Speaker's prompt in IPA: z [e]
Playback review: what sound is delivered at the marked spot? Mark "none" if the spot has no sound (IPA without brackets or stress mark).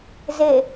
e